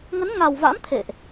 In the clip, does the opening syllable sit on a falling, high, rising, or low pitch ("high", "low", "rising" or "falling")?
rising